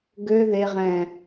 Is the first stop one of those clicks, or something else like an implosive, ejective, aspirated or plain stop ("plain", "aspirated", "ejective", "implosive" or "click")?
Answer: plain